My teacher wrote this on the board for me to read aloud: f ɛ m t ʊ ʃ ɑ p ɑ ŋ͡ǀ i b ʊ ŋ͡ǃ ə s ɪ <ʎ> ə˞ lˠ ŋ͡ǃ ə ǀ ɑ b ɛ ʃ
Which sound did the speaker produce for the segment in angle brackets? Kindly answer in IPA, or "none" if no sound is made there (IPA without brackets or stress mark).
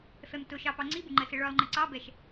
ɭ